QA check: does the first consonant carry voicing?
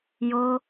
yes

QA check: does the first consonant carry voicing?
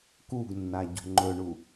no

